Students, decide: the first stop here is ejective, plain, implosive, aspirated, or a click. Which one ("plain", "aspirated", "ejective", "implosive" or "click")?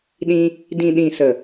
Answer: implosive